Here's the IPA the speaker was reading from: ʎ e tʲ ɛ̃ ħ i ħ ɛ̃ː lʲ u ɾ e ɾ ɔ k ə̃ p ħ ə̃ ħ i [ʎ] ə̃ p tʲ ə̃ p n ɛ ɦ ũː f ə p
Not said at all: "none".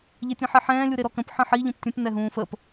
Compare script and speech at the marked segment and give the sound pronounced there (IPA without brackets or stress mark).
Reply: ʎ